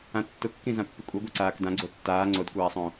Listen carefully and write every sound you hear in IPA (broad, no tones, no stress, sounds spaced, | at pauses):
ã tː ʊ kː ĩ z ã pː i kʷʼ e ɡʷ a ǀ aː k d ã ɡ͡ǀ o tː aː ŋ͡ǀ o d kʷ aː sˤ õ